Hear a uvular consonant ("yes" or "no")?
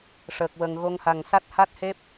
no